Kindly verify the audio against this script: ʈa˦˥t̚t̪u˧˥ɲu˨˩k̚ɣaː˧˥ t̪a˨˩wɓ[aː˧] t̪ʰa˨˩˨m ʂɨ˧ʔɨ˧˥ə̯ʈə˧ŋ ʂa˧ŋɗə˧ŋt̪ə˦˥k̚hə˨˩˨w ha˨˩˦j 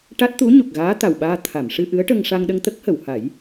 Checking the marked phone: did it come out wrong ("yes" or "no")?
no